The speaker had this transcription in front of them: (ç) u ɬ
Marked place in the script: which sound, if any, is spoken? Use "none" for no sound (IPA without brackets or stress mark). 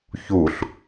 ç